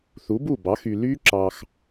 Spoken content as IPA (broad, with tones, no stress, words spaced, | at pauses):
θu˩˥bu˥˩bɑ˩˥ xy˧ ly˦˥ ǁɑ˧x